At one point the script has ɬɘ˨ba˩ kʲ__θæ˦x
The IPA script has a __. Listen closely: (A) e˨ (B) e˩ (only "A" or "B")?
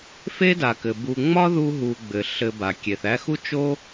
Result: B